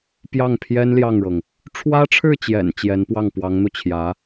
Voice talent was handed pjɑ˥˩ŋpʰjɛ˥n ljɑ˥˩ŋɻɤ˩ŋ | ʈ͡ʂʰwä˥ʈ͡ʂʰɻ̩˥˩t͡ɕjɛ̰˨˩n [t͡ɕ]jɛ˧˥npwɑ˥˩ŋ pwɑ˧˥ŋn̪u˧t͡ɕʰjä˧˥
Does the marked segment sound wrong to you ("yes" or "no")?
no